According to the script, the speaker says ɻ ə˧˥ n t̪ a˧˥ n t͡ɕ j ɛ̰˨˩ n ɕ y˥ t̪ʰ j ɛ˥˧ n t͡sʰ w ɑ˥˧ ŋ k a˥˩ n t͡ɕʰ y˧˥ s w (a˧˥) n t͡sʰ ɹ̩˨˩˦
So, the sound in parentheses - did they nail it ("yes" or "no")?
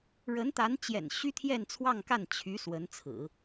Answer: no